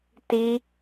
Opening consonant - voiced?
no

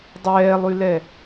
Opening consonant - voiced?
yes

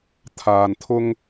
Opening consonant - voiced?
no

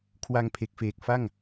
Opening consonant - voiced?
no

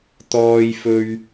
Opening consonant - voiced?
no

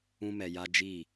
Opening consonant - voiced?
yes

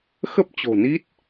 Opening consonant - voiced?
no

